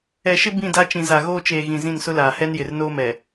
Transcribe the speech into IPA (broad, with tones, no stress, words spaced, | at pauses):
ɛ˨ʃɪ˦ bĩ˦˨da˦ t͡ʃĩ˨za˨ɣoː˦t͡ʃeː˨ ɣĩ˨zĩ˦˨nsʊ˦laː˨ hɛ˦njɪ˨rnoː˦mɛ˨